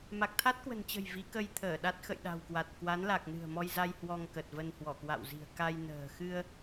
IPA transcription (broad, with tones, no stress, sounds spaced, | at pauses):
m a˨˩ k̚ t̪ʰ a˦˥ t̚ k w ə̤˨˩ n t͡ɕ ə̤˨˩ j v i˨˦ k ə˧ j t̪ʰ əː˧˩ ɗ a˦˥ t̚ x ə̰˧˨ j ɗ a̤˨˩ w k w a˨˩ t̚ k w a˨˦ n l a˨˩ k̚ n ɨ̤˨˩ ə̯ m ɔ˧ j z a˧ j h w ɔ˧ ŋ k ə˨˩ t̚ v ə˧ n h w ɔ˧˩ k w a̰˧˨ w z i̤˨˩ ə̯ k a˧ j n ə̤ː˨˩ x ɨ˧ ə̯